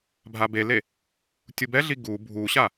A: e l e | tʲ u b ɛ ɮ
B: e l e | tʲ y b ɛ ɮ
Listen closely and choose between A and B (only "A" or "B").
A